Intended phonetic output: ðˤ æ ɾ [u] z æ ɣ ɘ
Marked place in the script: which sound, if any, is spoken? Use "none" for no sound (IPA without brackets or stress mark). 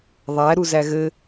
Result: u